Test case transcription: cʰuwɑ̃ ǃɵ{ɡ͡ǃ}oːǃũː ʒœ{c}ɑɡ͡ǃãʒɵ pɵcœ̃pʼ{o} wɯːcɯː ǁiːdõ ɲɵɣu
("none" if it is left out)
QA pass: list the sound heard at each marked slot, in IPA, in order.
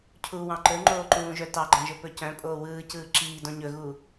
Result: ŋ͡ǃ, t, oː

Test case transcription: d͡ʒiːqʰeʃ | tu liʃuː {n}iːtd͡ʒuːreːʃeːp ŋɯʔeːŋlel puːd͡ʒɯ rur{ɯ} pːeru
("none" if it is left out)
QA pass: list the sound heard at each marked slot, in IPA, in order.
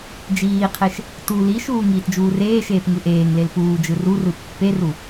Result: ŋ, ɯ

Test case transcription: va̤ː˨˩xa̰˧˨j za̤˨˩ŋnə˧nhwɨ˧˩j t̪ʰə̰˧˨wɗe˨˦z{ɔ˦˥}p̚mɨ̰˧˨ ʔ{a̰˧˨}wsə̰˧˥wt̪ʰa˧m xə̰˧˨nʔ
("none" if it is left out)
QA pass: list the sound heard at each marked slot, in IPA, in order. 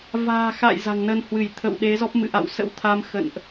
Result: ɔ˦˥, a̰˧˨

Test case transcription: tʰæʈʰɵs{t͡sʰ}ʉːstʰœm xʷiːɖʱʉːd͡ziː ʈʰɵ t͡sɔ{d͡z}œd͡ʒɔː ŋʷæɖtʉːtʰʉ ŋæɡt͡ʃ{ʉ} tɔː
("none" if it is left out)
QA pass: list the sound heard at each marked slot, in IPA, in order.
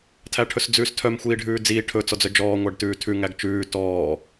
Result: d͡z, d͡z, ʉː

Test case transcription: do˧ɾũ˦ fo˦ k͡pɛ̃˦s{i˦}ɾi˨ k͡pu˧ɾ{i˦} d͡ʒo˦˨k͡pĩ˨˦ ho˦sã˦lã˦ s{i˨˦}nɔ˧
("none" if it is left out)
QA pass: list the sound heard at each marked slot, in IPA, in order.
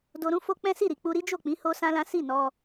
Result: i˦˨, i˦, i˦˨

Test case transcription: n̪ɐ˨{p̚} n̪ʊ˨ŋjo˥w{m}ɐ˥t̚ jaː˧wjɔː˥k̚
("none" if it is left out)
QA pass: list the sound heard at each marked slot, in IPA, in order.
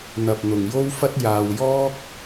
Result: p̚, f

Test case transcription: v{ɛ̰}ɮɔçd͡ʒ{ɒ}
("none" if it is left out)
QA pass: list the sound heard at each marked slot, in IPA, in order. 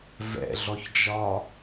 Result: ɛ̰, ɒ

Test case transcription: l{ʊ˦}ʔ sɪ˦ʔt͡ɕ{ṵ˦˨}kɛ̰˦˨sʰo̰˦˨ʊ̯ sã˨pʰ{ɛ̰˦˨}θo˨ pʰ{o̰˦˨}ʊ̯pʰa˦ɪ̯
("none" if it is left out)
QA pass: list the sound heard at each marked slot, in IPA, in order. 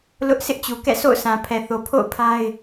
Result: ʊ˦, u˨, ɛ˨, o̰˦˨

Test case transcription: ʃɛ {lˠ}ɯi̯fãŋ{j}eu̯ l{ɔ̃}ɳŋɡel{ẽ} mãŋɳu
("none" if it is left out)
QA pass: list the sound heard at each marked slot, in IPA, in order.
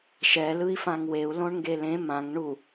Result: l, w, õ, ẽ

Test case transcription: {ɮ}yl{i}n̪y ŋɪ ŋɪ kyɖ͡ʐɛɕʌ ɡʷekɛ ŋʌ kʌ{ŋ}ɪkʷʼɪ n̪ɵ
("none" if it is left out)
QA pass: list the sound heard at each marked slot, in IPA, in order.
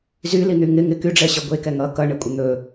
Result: z, i, ɳ

